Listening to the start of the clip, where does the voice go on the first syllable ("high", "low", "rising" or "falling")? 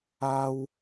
high